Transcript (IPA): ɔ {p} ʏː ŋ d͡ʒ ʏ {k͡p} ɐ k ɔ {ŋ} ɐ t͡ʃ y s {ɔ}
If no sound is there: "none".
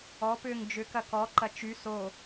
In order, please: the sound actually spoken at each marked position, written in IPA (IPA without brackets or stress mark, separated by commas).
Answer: p, k, ǃ, o